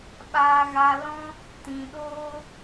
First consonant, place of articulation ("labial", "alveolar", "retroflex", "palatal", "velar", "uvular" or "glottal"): labial